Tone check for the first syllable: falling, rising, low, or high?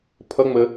rising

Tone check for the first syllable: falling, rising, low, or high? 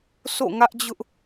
falling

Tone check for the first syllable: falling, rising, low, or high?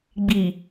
low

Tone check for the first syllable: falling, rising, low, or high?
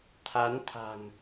rising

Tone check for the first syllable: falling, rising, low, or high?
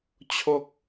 high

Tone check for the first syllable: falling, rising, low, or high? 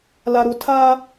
low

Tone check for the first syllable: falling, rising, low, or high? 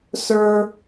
high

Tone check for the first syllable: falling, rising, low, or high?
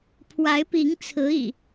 rising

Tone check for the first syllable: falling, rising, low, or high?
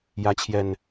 rising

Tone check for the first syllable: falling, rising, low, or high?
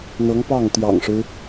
rising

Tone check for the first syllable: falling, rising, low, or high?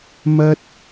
high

